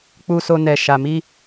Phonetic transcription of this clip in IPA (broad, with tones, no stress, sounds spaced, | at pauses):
k͡p u˧ s o˧ n ɛ˨ ʃ a˨ m i˧